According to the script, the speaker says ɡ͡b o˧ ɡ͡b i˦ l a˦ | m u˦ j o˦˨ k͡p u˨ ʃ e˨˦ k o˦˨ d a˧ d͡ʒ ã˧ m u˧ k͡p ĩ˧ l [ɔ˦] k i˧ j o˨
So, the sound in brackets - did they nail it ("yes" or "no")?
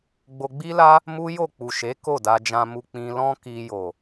no